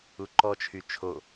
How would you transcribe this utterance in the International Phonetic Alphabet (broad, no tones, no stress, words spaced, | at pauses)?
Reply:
uǃɔt͡ʃʰy t͡ʃʰo